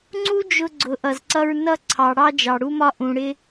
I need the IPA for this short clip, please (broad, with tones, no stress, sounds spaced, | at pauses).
ŋ͡ǀ u˦ d͡ʒ ʊ˧ ɡ͡ǀ ʊ˨˦ ʔ ʌ˨ z ǀ ʌ˧ ɹ n ʌ˧ ǀʰ ɑ˨ ɽ ɑ˧ d͡ʒ ɑ˨ ɽ u˧ m ɒ˧ ʔ ũ˨ ɽ ɪ˧